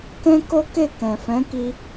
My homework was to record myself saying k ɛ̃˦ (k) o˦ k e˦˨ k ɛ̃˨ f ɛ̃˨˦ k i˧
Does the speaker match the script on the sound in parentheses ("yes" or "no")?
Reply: yes